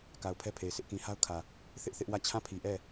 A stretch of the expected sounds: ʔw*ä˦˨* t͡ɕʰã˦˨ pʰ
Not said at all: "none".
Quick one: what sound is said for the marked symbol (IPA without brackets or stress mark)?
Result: ä˦˨